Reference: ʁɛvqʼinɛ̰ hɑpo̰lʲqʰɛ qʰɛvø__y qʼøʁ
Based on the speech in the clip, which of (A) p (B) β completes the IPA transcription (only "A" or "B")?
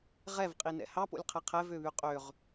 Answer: B